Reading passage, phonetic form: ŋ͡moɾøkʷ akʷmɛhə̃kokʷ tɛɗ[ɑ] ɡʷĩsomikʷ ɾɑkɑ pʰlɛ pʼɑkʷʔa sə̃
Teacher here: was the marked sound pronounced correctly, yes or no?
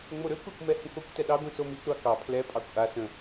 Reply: yes